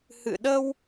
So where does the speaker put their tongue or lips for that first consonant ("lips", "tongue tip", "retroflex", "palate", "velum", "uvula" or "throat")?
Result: throat